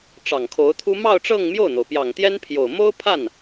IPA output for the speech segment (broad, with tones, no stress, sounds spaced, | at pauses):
ʈ͡ʂ ɑ˨˩ ŋ kʰ o˧˥ ʊ̯ t̪ʰ u˥ m ɑ˥˧ ʊ̯ ʈ͡ʂ ɤ˥˧ ŋ m j o˥˩ ʊ̯ n̪ o˩ ʊ̯ p j ɑ˨˩ ŋ t̪ j ɛ˥ n pʰ j o˨˩ ʊ̯ m o˥ ʊ̯ pʰ a˥˩ n